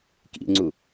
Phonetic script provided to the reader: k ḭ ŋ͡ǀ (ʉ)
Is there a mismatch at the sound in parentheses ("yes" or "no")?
yes